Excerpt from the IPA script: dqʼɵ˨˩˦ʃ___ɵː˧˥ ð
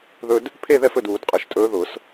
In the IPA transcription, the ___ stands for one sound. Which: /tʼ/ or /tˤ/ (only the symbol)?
tʼ